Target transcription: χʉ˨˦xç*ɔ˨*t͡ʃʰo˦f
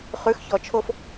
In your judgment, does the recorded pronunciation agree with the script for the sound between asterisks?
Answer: yes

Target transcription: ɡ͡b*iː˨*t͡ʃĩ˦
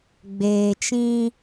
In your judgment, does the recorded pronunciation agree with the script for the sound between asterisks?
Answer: no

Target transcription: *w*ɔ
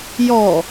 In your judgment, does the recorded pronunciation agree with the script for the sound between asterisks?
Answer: no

